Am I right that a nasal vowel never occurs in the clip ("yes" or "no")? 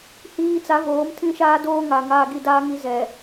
no